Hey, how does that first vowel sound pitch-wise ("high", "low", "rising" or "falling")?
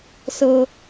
high